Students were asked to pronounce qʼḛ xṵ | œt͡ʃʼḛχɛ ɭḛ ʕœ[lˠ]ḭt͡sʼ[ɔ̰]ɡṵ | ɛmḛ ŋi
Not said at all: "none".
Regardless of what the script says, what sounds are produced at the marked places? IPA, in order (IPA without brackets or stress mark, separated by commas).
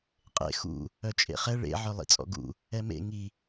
lˠ, ɔ̰